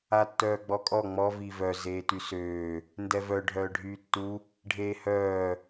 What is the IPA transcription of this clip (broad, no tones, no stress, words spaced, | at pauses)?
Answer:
atːœːɡ͡bɔkʼɔ ŋ͡mɔ vivœ zeːtysøː | ndɛvœ ɖʱœːɖʱyːtːu | ɖʱeːhœː